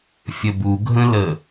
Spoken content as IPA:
fʲəbuɡʱə̃lə

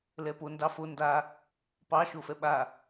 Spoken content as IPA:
lɛpo ndɑfo nda | pɑ ʃofɛɓa

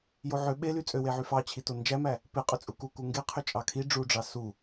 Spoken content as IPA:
joʕø ɓely t͡sʼøweʕy fɑt͡ɕʰi tond͡ʒæmæ | peqʼøt͡sʼu kuku ŋɡe qʰøt͡ʃʼɑkʰi ɖ͡ʐuɖ͡ʐɑ su

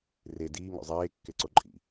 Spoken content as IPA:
re diːŋo̰ zˤeːkːeǀo ǃʼḭ

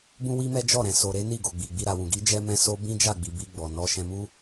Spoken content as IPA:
bũ˦wi˦mɛ˦ d͡ʒɔ˦˨ɾɛ̃˨ so˨ɾe˨˦ ni˦˨ɡo˨ɡ͡bi˨ɡ͡bi˧ ɾa˨wũ˨ɡi˨˦ d͡ʒɛ˦mɛ̃˦so˦ bĩ˦d͡ʒa˦˨ɡ͡bi˨ bi˧ ɡ͡bɔ˨nɔ˨˦ ʃɛ̃˧mu˦

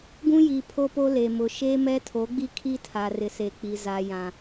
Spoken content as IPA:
ɡũ˦ji˨ pʰo˦po˦le˨ mʊ˨ ʃe˦mɛ˦tʰo˨˦ɡ͡bi˦ kʰi˦tʰa˨rɪ˨se˨ k͡pi˨za˨jã˨

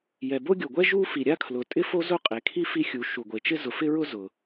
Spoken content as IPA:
jɛ˩bo˥ɡʲo˩ɡʷɛ˥ ʒu˥fi˩ ɾʲa˥kʰlʊ˩ tʼɪ˥ fo˥zʊ˥qʼe˩ kʰi˥ fi˥xʲu˩ ʃu˩ɡʷe˩t͡ʃɪ˥ zʊ˩fɪ˥ɹʊ˥ zʊ˩

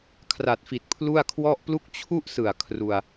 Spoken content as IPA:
kʰra˨˩t̚fi˨˩t̚pʰlu˥˩a̯ kʰwɔ˥˩ʔplu˥˩k̚ t͡ɕʰu˥˩ʔsɯ˨˩a̯ kʰru˧a̯

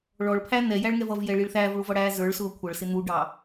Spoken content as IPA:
ɭɔɭpʰæ n̪ɛjæɭŋɛv ʌvjɛɭiɭ θæːvɭuvʌɽæː zə˞ɭsʊː kʷʰʌɭsɪ n̪uɖɑ

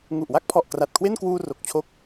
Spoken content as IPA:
ŋu˨˩ʔwa˥˩k̚pʰɔ˨˩ʔ kra˨˩t̚kʰwe˥˩nkwuː˧ ro˨˩k̚t͡ɕʰo˦˥k̚

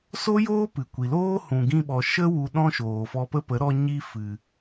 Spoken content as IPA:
so˦joː˦ pɨ˨kʷi˨loː˦ hũ˨ɡĩ˧ɓɔ˨ ʃə˦ wu˧ɗɔ̃˦ ʃoː˨fɔ˧pə˦pə˨˦ ɾɔ˧ ɲi˦ fɨ˨

